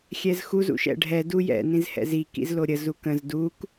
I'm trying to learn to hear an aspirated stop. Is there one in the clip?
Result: no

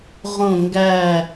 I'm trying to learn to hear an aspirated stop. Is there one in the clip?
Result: no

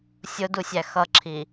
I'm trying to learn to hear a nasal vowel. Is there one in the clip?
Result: no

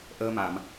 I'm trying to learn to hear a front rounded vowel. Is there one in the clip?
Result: no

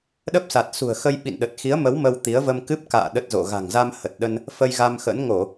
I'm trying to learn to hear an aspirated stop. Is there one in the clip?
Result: no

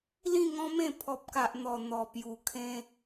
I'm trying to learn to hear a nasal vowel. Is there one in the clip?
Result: yes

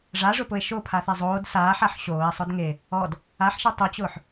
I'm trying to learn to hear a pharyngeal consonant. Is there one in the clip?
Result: yes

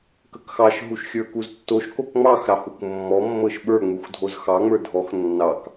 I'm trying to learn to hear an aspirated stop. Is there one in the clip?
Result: no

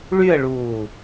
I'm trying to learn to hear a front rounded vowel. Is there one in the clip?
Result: yes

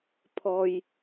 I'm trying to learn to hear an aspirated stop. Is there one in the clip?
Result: yes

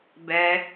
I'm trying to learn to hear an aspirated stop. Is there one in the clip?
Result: no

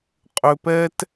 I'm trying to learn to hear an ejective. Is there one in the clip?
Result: yes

